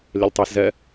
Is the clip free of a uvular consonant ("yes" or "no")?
yes